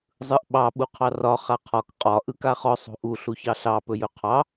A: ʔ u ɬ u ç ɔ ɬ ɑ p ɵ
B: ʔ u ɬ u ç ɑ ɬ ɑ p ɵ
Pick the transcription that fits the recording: B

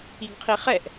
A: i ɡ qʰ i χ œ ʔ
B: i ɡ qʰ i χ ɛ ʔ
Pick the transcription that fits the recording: B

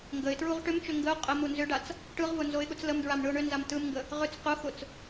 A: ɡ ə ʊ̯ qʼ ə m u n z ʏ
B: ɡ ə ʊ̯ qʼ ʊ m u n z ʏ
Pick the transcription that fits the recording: A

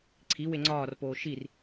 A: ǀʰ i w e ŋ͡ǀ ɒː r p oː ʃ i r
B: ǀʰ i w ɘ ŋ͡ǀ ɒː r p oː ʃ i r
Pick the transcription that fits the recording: A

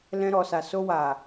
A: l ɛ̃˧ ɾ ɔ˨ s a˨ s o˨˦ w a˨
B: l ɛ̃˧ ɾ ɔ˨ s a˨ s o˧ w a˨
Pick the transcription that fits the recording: B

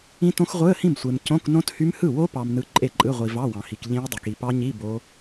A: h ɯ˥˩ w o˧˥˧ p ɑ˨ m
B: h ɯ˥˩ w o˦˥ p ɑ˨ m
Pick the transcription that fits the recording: B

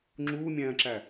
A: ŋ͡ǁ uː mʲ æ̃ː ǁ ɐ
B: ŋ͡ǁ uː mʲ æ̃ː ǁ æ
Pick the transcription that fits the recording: B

